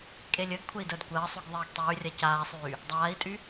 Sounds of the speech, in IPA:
kʼelʲəːɡkʷʰei̯ dœdkʷəːsˤyɡ ðˤiːɡtˤyːrʲa caːsˤyː | dˤaːi̯tʼy

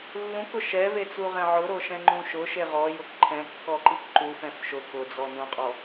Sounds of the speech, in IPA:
lːũkʊ ʃɛvet͡suʁɛ̃ ʕʊɾoʃɛ̃ŋ͡ǃũ ʃʊʃe ʁɔjʊk ǃʰɛ̃kːɔǃik ǃufɛ̃f ʃʊ kʊd͡zɔ nũqʼɔ

